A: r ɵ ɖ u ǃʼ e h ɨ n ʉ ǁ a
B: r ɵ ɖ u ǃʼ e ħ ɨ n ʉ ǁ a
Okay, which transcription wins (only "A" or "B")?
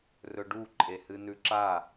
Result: A